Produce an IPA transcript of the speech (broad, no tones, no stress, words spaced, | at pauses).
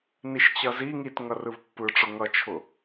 niʃt͡ɕʌzi ŋitŋʌ rɯvpːɯʈ͡ʂʊ ŋʌt͡ʃʰʊ